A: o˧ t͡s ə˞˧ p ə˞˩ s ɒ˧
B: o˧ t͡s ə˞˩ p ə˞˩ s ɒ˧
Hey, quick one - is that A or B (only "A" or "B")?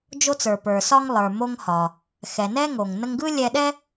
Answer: B